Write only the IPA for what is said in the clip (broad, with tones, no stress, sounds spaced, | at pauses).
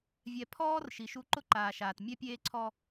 vʲ ɛ˨ pʰ ɔː˦ r ʃ i˨ ʃ u˦ ǃ ʊ˦ ǃ aː˨ ʃ aː˨ t mʲ ɛ˦ pʲ eː˦ ǀʰ ɔ˦